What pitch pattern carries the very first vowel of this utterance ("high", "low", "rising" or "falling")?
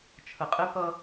low